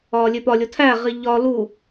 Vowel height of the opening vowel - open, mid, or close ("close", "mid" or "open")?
open